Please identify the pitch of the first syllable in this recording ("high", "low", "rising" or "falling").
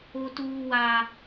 high